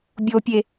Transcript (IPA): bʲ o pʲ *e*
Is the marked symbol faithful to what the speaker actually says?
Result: yes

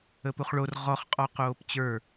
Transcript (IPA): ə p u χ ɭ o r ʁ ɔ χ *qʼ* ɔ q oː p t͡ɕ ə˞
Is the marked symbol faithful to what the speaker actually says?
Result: yes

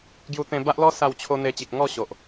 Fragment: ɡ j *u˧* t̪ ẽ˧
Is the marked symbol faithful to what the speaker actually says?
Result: yes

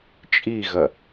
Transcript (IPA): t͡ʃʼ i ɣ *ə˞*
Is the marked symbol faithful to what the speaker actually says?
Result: no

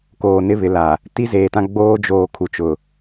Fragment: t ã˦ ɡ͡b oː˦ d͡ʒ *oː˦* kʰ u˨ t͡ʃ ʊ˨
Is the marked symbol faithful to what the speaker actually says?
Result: no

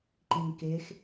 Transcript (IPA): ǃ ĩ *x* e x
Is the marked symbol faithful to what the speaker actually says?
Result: no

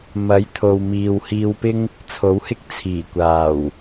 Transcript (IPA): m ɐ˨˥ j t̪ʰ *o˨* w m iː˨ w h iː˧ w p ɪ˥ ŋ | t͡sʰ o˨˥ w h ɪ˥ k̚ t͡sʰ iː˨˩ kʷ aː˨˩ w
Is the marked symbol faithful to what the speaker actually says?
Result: yes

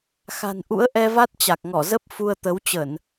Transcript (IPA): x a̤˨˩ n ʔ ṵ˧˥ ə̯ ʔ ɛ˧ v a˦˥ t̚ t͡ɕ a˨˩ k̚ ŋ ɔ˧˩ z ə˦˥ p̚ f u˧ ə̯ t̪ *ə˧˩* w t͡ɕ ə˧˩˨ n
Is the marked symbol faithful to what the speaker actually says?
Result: no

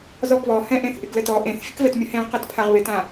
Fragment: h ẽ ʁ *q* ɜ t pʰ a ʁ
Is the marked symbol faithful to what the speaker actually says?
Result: yes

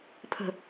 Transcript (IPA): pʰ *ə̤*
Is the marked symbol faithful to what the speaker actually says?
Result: yes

